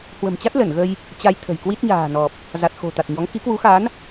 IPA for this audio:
h w ə̤˨˩ m t͡ɕ a˦˥ t̚ l ə˧˩ n ɣ ə˧ j | t͡ɕ a˧ j t̪ʰ ə̤˨˩ j k w i˦˥ t̚ ɲ a̤ː˨˩ n ɔ˨˩ p̚ | z a˨˩ t̚ x o̤˨˩ t̪ a˨˩ t̚ ɲ ɔ˨˦ ŋ x i˨˦ k w u˨˦ x a˨˦ n

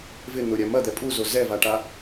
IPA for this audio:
v ɪ n̪ ʊ ɾʲ a m ɐ d̪ ɛ pʼ u z o z ɛ v a ʈ a

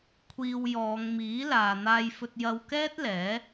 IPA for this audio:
kʷʰ iː˧ w j ɔː˨˧ ŋ m iː˨˥ l aː˨ n̪ aː˧ j f ɵ˧ t̚ j ɐ˧ w k ɛː˥ t̚ l ɛː˨˥

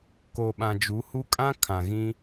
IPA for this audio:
k o˨ ɓ ã˨ d͡ʒ u˨˦ h u˦ kʼ ã˦ kʰ ã˨ ɣ ĩ˦

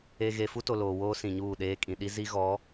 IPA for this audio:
e˨ ɣ e˨ f u˦ t o˨ l oː˨ w oː˦ s ĩ˨ ɲ uː˦˨ ɗ eː˦ kʼ ĩ˨ ɗ i˦ z i˦ ɣ ɔ˨˦

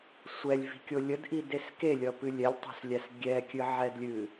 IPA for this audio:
sʷ ɛ lʲ v i̤ kʲ o lʲ ə d ʔ i d e s k e lʲ ʌ p ɨ lʲ ɛ lʲ tˤ o̤ s lʲ æ s ɡʲ ɛ kʲ ɨ ʕ ɛ d lʲ ɨ

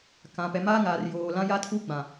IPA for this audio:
k ã˨ p ɛ˨ m aː˦ ŋ aː˨ r j oː˨ l ã˦ j a˦ tʰ u˦ ɡ͡b ã˨

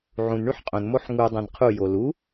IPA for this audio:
ʕ ũ n ɳ y ħ qʼ õ n m o ħ ŋ u dˤ ẽ n qʰ u j o l u

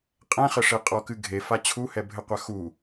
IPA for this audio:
qʼ ɛ̃ χ ɘ ʂ e qʼ ɔ k ɨ ɡʱ e f a t͡ɕʰ u h ɛ bʱ ɘ qʷ a x u

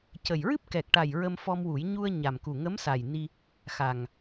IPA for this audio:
c ə˨˩ j ɹ ɨ˦˥ p̚ k ɛ˨˩ k̚ ʈ a˨˩ j ɹ ə˧ m f ɔ˧ m w u˨˩˦ j ɲ u˧ ə̯ ɲ a˨˩ m k u˨˩ ŋ ə˧˥ m s a˨˩ j n i˧ | x a˨˩ ŋ

